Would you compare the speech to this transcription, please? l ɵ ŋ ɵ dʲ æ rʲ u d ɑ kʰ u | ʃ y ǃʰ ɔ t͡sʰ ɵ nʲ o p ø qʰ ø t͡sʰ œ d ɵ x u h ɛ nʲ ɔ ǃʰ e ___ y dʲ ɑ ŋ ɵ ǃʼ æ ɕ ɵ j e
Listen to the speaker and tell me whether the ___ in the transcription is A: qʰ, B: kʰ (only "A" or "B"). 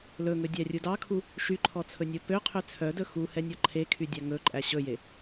B